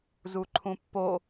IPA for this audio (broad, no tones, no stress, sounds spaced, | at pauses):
z u ǃʰ ũ pː o